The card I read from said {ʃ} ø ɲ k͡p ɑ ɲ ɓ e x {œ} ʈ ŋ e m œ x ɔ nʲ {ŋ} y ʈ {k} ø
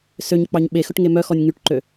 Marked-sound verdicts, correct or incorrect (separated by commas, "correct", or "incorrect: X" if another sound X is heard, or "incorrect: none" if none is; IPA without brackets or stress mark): incorrect: s, incorrect: ɵ, correct, incorrect: ǃ